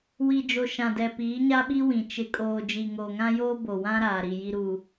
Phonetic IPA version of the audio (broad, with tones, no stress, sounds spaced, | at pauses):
w i˨ d͡ʒ o˨ ʃ ã˨ d ɛ˨ p iː˨˦ ɲ a˦ ɓ i˦ w ĩ˨ t͡ʃ ɪ˨˦ kʼ oː˨ d͡ʒ i˨ ŋ o˨ ŋ ã˦ j oː˦ b o˨ w ã˦ ɾ aː˨ ɾ i˨ j i˨ ɾ u˨